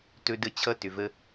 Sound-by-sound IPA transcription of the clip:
t ɵ˧ d ə˧ t͡ɕʰ ʌ˦ t ʏ˨ v ə˦

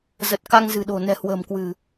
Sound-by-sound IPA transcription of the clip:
z ə˨˩ t̚ k a˧ ŋ z ɨ̤˨˩ ɗ o̤˨˩ n ɛ̤˨˩ h w ə̤ː˨˩ m k w ɨ̤˨˩

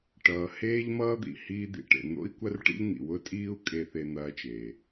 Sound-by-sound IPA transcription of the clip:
ʈ ʌː˩ h eː˥ ʎ m ʌː˥ d̪ ḭ˩ h iː˥ d̪ ḭ˩ ʈ ḛ˩ n̪ o̰˥ i̯ kʷ ɐ˥ r ʈ ḭ˥ ʎ n̪ ḭ˩ w ʊ˥ tʼ iː˥ u̯ kʼ e˥ θ e˥ n̪ ɐː˥ t͡ʃ eː˩

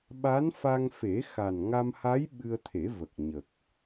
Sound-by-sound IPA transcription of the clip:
ɓ a˧˥ n f a˧ ŋ f e˨˩˦ x a˨˩ n ŋ a˧ m h a˧˥ j ɓ ɨ˧ ə̯ t̪ʰ e˨˩˦ v ə˨˩ k̚ ɲ ə˨˩ k̚

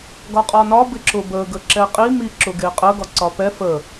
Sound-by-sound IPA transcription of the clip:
ɡ ɒ qʼ ɒ n ɒ b ɪ ǁ ʊ b ə ɡ ə ǁ ɛ qʼ i m i ǁ ʊ ɡ e qʼ ə ɡ ɒ ǀ ɒ p ɛ f ə

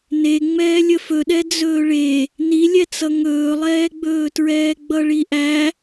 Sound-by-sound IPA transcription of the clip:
n e ŋ͡m ɛː lʲ ə f ɵ ɗ ɛ d͡z ɵː ɭ e | n i lʲ ɛ t͡s ʌ ŋ ɵː lˠ ɛː ɡ͡b ɵː t ɹ ɛː ɡ͡b ʌ ɭ i ʔ æ

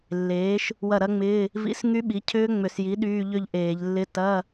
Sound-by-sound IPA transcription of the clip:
lː eː˩˥ ʃ | w ɐ˥˩ ɾ ɐ˦˥ ŋ͡m ɪː˧˥˧ | v ḭ˧˥˧ s ŋ y˦˥ ɓ i˩˥ cʰ ʏː˦˥ ŋ͡m ʏ˧˩˧ s j i˩˥ ɗ yː˧˥˧ ʎ ʏ˥˧ ʎ ʔ eː˧˩˧ ʎ lː ɪ˧˥˧ t ɐ˧˥˧

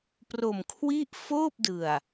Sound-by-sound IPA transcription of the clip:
p r o˨˩ m kʰ w i˥˩ ʔ f oː˥˩ p̚ d ɯ˨˩ a̯

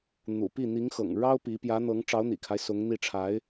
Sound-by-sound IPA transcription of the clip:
n̪ ṵ˨˩ p i˥˩ n̪ i˧˥ ŋ x ɤ̰˨˩ ŋ ɻ ɑ˥ ʊ̯ p i˧˥ p j ä˧˥ n̪ ɤ˧˥ ŋ ʈ͡ʂ ɑ˧˥ ʊ̯ n̪ ḭ˨˩ kʰ a˦ ɪ̯ s ʊ˧˥ ŋ n̪ i˥˩ ʈ͡ʂʰ a˧˥ ɪ̯

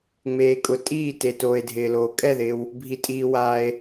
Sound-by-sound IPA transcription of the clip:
ŋ͡m eː˨ kʼ ʊ˨ tʼ iː˥˩ t e˨ t oː˨ e̯ dʱ ɪː˨ l oː˨ kʼ ɛ˥˩ ð ɪː˨ w | bʱ i˨ tʼ iː˨ w aː˨ e̯

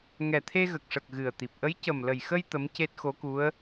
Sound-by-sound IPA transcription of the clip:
ŋ ɛ˨˩ t̪ʰ e˧ ɣ ə˨˩ k̚ ʂ ə˨˩ k̚ ɣ ɨ˨˩ ə̯ t̪ i˨˩ p̚ ʔ ə˧˥ j c ə˨˩ m l ə˨˩ j x ə˧ j t̪ ə˧˥ m c e˦˥ t̚ x o˧˥ k u˧˥ ə̯

